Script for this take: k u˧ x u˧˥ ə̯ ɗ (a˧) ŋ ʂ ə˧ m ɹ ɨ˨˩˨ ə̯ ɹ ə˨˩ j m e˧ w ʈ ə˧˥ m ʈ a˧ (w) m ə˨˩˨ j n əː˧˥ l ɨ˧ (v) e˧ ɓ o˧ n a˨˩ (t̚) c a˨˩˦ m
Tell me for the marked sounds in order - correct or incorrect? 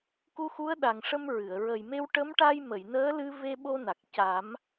incorrect, incorrect, correct, incorrect

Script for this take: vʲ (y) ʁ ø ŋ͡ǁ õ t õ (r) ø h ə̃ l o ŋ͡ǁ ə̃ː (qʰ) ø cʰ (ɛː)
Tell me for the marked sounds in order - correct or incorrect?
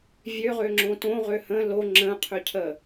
incorrect, incorrect, correct, incorrect

